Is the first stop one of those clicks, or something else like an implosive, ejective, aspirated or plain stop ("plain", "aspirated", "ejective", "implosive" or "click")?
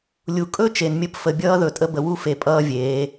ejective